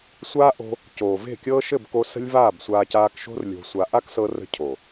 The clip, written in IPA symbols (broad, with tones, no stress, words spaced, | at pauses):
sʷaː˦ ʔo̤˧ | coː˨ ve̤˦˨kʲɤː˦ ʃɘ˦˨bko˧ sə̤˦lʲvaː˦˨bsʷaː˧ caː˧kʃo̤˦r lʲo̤˧sʷa˧ ʔa˦ksɤ˧rə̤˧ cʰo˨